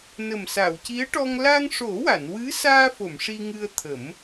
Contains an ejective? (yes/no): no